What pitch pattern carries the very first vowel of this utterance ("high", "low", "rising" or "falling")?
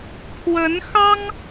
rising